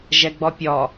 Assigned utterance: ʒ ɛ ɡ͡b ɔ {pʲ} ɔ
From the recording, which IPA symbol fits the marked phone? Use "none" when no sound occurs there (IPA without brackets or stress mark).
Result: pʲ